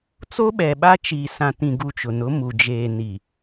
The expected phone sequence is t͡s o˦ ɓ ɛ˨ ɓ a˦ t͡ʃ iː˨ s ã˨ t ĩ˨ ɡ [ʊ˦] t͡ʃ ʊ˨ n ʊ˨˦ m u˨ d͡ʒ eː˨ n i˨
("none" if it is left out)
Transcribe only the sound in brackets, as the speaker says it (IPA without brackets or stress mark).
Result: u˦